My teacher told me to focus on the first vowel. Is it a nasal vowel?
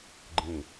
yes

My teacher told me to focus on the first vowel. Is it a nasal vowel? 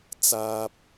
no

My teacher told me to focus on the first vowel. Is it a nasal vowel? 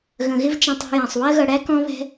yes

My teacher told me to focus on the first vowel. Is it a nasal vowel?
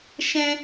yes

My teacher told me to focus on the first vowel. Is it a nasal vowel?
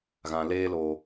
yes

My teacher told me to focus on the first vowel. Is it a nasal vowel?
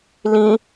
yes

